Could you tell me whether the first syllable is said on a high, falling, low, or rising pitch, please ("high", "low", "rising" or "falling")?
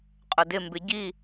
low